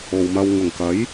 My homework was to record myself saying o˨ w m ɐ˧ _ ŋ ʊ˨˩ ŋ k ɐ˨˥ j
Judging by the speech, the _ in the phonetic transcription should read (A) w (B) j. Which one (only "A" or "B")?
A